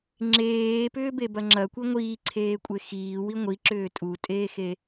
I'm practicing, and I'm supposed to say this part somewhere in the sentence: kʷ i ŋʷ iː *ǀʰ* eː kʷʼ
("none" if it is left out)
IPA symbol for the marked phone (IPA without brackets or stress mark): ǀʰ